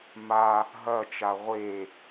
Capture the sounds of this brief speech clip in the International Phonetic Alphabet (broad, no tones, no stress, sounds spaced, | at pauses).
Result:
m a | ɦ ɐ t͡ʃ a ʁʷ e